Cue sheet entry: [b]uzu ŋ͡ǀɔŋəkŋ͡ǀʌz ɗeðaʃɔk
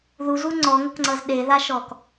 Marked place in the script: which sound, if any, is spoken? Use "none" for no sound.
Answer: ð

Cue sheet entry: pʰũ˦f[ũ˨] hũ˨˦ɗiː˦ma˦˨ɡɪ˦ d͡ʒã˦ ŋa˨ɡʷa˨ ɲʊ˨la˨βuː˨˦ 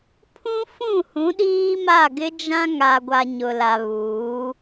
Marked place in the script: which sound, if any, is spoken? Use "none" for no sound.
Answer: ũ˦˨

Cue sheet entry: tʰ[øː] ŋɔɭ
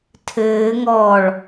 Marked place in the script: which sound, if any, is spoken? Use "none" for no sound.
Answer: ɘː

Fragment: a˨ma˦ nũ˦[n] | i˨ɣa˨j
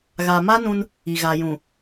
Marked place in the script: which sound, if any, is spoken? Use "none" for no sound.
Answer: n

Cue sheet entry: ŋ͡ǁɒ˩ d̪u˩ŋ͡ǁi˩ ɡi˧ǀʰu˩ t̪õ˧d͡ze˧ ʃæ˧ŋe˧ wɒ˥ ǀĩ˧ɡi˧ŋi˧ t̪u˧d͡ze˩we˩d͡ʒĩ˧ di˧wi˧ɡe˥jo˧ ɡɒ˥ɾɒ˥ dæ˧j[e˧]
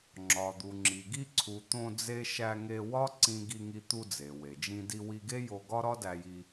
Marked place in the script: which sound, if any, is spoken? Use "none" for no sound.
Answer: i˧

